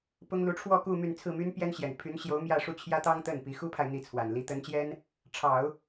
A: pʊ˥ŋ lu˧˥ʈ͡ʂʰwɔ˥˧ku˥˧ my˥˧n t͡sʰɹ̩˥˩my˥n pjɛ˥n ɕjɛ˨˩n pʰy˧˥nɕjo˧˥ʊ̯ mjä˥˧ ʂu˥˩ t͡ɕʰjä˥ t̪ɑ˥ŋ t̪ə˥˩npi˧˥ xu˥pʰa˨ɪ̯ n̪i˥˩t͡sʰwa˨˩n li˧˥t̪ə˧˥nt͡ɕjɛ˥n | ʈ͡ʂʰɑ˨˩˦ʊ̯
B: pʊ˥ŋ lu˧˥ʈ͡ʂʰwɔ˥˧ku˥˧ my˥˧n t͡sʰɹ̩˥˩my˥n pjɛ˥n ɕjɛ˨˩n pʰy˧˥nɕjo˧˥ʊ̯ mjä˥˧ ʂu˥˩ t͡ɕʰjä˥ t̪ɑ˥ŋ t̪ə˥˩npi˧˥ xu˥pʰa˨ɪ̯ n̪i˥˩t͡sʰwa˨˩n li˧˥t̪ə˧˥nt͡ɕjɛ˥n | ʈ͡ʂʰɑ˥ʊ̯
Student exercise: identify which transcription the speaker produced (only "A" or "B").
A